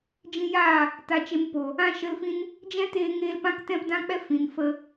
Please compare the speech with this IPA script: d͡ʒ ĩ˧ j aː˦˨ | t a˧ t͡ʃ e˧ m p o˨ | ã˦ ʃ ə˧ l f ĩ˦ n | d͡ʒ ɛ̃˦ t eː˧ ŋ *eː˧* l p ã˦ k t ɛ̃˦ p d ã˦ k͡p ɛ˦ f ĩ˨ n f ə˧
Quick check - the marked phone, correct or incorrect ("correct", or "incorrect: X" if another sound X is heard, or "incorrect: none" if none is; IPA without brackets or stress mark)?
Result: correct